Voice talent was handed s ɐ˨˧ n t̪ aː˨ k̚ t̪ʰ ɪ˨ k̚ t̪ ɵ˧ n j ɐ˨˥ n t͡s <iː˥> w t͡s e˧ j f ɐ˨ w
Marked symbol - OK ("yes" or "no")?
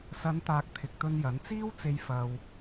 yes